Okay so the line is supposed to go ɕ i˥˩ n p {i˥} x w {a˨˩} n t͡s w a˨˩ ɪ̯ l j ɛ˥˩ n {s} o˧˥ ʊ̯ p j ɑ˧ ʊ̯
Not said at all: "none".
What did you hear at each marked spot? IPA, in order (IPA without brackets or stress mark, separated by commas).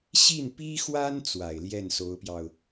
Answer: i˥, a˥, s